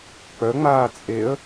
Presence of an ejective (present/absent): present